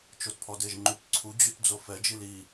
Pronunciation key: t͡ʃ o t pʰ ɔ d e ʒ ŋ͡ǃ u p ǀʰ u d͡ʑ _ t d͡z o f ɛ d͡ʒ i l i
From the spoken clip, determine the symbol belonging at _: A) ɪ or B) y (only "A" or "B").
B